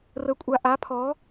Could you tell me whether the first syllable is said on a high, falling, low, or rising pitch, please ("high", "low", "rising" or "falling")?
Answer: rising